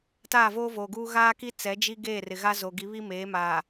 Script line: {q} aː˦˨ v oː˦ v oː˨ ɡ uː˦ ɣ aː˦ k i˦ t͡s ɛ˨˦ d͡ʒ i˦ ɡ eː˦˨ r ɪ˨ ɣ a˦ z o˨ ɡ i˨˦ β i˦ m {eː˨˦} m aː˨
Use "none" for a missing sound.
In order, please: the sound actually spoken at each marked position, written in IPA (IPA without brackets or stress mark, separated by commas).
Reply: t, eː˨˦